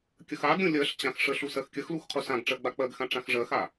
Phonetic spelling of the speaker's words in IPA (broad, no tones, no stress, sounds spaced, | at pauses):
kʲ ə x a ɡ ɾʲ ũ lʲ ɜ ɬ t͡ɕ ã x ʂ ə ɬ u s ɜ x kʲ ə x l u x qʰ u s ã ɡ ʈ͡ʂ ɜ ɡ͡b a k͡p ɜ ɡ x ã ʈ͡ʂ ã x ʐ ɜ x a